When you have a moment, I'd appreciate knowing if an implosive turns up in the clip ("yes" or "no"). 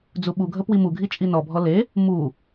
yes